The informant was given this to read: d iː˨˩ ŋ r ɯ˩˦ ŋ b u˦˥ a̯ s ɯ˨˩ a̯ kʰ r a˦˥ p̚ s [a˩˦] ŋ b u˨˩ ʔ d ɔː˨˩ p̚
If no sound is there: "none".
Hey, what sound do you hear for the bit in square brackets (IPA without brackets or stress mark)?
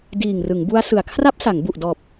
a˩˦